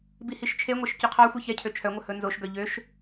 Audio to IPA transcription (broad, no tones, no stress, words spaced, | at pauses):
bihiʃt͡ʃʰeŋʷɛʃ cɵqʰɑxʷi çɛcʰø t͡ʃʰœŋʷœ hɵnzoʃɡœ ʎøʃ